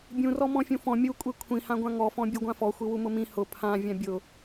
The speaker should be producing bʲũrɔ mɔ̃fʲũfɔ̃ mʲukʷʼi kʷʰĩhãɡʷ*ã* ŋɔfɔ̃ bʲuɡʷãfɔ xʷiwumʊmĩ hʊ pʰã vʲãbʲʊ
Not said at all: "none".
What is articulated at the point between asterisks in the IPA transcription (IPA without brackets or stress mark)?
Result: ã